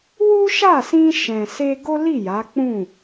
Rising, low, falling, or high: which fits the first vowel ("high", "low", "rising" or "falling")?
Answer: high